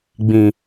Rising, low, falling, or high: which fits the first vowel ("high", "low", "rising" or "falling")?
low